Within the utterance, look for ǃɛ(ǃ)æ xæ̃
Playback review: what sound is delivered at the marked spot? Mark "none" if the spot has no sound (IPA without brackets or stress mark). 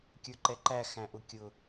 ǃ